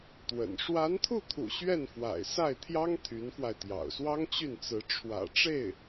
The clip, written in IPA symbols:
t̪ w ə̰˨˩ n ʂ w a˧˥ n t̪ʰ u˥˩ t̪ʰ ṵ˨˩ ɕ ɥ ɛ˥˩ n f w a̰˨˩ ɪ̯ s a˥˩ ɪ̯ t̪ʰ j ɑ˥ ŋ t̪ʰ y˧˥ n f w a˧ ɪ̯ t̪ j ɑ̰˨˩ ʊ̯ s w ɑ˥ ŋ t͡ɕ y˥˩ n t͡s ɹ̩˧˥ ʈ͡ʂʰ w ä̰˨˩ ʈ͡ʂ e˥˩ ɪ̯

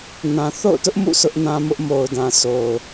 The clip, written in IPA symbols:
n ã˨ θ o̰˦˨ ʊ̯ t ʊ˦ ʔ m ṵ˦˨ sʰ ʊ˦ ʔ n ã˦ m ʊ˦ ʔ m o˨ ʊ̯ d ã˨ sʰ o˨ ʊ̯

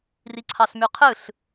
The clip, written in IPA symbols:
r i ǀʰ ɑ ɬ m y qʰ ɯ ɬ

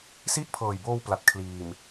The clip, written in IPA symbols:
s i˥˩ ʔ pʰ ɤː˨˩ j b oː˧ w p l a˨˩ t̚ kʰ l iː˨˩ m

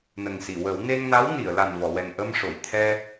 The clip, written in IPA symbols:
n ə˨˩ ŋ s i˨˩˨ w ə˨˩˦ w n e˧ ŋ n a˧˥ w n i˨˩˨ ə̯ l a˨˩ n v ɔ˨˩˨ w ɛ˨˩ ŋ ʔ ə˧ m ʂ o˨˩˨ j t̪ʰ ɛ˧

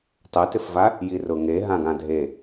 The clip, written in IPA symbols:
tˤ ɛ t ɪ f v a | j i r ʊ ŋ e ɦ ã ɡ ã dʱ e

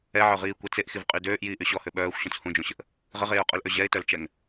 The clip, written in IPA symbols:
ɛ ʕ œ ʁ iː kʷ ɛ t͡s e ʔ x i v qʼ y d øː ʔ j iː ʔ y ɕ ɔ h ø ɓ œː xʷ ɕ õ t͡s h ũ d͡ʒ õ ɕ ə ʔ | ʁ ə ʁ eː ʊ̯ qʼ œ l ʔ ø ʑ ɛ ɪ̯ t œ l t͡ʃ ɛ ŋ

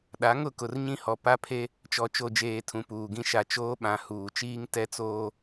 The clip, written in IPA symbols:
ɗ a˨˦ ŋ ʊ˦˨ k ʊ˨ r ɲ ĩ˦ h ɔ˨ p a˦ pʰ e˦ | t͡ʃ ɔ˨ t͡ʃ o˨ d͡ʒ eː˨ tʰ ũ˨ p uː˨ ɡ ĩ˦ ʃ a˨ t͡ʃ oː˦ ɓ ã˨ h uː˨ t͡ʃ iː˦ ŋ t ɛ˦ t͡s oː˦

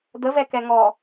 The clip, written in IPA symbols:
d̪ ə v ɛ k ɛ ŋ ɔ

